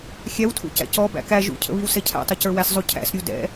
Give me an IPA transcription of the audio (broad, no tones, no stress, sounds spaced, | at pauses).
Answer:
xʲ æ w tʰ ṵ c æ̰ c ɔ b æ̰ k æ ʒ ṵ cʰ ə̰ β i w s ɛ cʰ æ̰ tˤ ɛ c ə˞ w æ s zˤ u cʰ æ̰ s ɾʲ u d ɛ̰